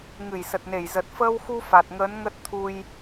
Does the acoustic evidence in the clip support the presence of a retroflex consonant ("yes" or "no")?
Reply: no